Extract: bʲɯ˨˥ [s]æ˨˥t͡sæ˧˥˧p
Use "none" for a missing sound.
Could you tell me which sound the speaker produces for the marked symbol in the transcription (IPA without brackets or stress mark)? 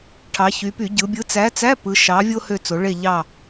t͡s